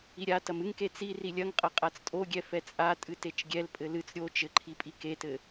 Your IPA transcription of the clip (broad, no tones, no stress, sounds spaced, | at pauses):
i ɾʲ a t ɐ m ɨ ŋ k e t͡s i r i lʲ ɐ ŋ qʼ ɐ qʼ a t͡s tʼ o ɡʲ ɛ f ɛ t͡sʼ a tʼ ɨ t e t͡ʃ ɡʲ ɛ l pʼ ɘ l ɨ t͡s ɾʲ o t͡ʃ ɘ ǃʰ i pʼ i k e t ɘ